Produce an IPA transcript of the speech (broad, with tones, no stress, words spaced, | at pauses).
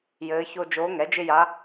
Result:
jɘː˧˥ço˥ d͡ʒoː˧˥ŋɛ˩˥d͡ʒɪ˥ja˧˥